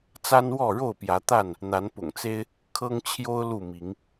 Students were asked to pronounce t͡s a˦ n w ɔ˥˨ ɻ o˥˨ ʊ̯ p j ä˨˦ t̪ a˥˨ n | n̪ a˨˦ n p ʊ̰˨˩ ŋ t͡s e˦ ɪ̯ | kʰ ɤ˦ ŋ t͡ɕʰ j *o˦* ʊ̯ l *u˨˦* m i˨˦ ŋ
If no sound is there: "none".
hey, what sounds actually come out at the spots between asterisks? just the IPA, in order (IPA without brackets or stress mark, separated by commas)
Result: o˦, u˥˨